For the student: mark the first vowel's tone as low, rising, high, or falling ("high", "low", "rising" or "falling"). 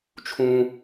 high